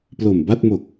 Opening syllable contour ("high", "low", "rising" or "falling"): low